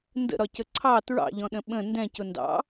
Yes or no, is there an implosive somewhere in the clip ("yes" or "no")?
yes